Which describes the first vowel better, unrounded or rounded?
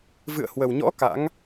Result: unrounded